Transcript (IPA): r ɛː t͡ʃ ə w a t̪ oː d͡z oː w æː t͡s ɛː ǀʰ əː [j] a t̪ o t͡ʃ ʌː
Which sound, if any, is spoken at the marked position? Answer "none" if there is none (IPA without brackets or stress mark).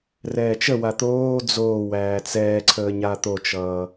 ɲ